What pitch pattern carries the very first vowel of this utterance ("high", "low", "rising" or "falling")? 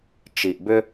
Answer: low